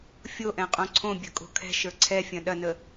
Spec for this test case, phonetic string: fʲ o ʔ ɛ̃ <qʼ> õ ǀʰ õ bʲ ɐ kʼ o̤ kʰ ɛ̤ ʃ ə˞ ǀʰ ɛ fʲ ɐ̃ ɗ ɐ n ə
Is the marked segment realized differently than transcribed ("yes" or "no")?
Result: no